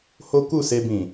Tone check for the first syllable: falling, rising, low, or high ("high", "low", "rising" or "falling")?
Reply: high